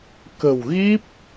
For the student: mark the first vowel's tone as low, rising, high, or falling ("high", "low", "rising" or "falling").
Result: low